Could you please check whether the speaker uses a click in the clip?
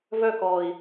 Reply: no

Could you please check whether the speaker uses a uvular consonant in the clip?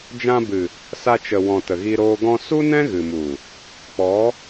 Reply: no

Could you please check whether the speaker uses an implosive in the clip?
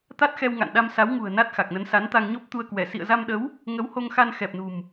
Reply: yes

